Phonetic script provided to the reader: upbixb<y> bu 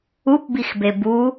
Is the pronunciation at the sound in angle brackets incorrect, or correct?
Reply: incorrect